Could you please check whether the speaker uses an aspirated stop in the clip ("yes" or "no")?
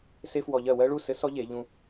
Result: no